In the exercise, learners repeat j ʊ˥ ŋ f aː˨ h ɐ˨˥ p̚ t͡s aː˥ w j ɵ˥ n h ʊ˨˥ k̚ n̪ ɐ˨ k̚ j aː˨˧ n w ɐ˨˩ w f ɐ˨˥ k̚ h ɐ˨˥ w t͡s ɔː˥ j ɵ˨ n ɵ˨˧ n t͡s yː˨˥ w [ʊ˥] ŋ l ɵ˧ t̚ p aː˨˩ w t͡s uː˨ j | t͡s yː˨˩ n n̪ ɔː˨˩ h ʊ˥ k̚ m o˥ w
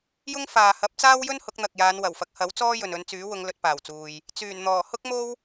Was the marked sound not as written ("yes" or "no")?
yes